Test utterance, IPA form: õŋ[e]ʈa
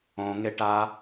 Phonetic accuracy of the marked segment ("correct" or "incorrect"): correct